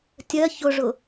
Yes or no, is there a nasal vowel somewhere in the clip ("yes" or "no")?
no